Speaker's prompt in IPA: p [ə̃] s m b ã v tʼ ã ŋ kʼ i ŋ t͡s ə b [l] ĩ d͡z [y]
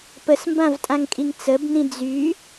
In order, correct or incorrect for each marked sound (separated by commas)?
incorrect, incorrect, correct